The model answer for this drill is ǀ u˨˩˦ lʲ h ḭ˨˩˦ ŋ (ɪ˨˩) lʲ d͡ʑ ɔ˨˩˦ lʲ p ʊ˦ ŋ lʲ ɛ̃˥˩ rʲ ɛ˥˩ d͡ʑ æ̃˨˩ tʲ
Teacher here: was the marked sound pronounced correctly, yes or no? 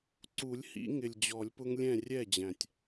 yes